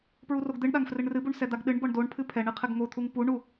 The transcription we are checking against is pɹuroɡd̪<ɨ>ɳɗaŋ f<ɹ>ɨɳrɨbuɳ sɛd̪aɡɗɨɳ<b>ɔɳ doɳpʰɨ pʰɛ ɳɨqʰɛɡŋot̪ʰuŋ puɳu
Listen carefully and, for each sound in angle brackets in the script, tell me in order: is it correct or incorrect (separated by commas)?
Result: correct, incorrect, correct